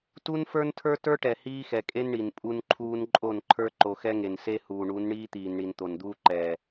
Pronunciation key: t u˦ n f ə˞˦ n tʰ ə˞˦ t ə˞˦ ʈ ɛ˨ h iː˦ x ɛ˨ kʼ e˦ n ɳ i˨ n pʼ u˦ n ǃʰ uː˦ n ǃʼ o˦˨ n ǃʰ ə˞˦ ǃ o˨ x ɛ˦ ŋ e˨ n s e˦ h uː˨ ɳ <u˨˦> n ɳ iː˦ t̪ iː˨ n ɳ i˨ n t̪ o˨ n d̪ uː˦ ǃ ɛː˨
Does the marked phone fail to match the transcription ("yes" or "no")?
no